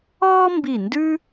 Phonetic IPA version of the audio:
ɔː˥ m b i˧˩ n d ʉ˥

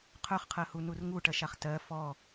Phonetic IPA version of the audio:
qʰ œ χ qʰ ɜ h u n u r ŋ u ʈ ɜ ʃ a χ t ɜ f ɔ

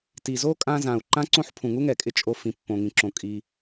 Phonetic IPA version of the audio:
t i˩ z o˥ kʼ ã˧ z ã˩ u̯ ǃ ã˥ ǀ õ˥ ħ pʰ ũ˩ ŋ u˥ ŋ ɛ˩ kʼ ɪ˧ t͡ʃʼ o˧ f ĩ˩ pː õ˩ ŋ ĩ˩ ǁ õ˩ kʼ i˩

